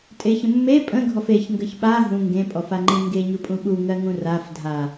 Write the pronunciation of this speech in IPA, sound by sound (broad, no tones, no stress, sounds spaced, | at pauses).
tʼ e ç ə̃ mː e pʼ ə̃ ɡʱ ɔ f e ç ŋ ɡ ə ç ɓ a ɦ ũ ŋ ɡ ẽ pʼ ɔ f a ŋ͡ǃ ẽ ŋ ɡ e ɲ u pʼ ũ ɓ u ŋ ɜ ŋ ũ r a f dʱ a